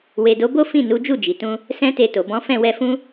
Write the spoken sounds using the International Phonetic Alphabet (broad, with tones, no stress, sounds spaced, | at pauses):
w e˨ d o˨˦ b o˦ f ĩ˦˨ n u˨˦ d͡ʒ u˦˨ d͡ʒ i˨ t ũ˧ | s ɛ̃˦ t e˧ t o˨ b ɔ̃˨˦ f ɛ̃˦˨ w ɛ˧ f ũ˦